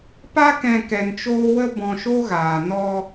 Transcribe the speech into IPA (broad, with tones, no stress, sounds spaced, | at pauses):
p a˦ k ɛ̃˧ k ɛ˧ n t͡ʃ oː˦ w ə˦ b ɔ̃˧ ʃ o˦ ɣ aː˨ n ɔ˧